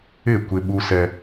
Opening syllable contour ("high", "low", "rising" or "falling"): falling